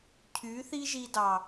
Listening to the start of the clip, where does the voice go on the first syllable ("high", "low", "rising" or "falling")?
rising